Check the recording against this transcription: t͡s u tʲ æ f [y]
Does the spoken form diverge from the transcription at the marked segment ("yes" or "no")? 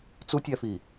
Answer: yes